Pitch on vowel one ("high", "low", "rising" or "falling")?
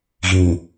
low